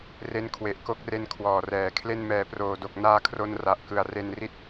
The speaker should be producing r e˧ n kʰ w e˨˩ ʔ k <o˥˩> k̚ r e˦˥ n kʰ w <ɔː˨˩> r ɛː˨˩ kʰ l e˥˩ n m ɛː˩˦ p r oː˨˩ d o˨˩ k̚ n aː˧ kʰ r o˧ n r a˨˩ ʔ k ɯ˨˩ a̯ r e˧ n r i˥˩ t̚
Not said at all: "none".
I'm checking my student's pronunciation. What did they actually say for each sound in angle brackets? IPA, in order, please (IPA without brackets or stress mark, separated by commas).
o˥˩, ɔː˨˩